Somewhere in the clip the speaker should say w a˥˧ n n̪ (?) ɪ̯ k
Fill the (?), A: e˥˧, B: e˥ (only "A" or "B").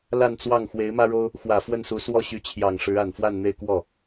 A